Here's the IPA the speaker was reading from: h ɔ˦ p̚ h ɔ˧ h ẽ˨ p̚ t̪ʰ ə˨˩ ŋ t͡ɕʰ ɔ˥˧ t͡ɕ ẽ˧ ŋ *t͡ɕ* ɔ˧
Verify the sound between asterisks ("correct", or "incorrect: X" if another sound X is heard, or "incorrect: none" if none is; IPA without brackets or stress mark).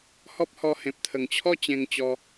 correct